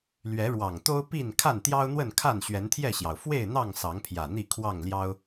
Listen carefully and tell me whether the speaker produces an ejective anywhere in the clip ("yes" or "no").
no